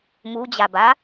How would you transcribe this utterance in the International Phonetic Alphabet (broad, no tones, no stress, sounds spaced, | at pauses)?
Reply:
m u d͡ʑ a b a